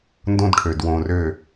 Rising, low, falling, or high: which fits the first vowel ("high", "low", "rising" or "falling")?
high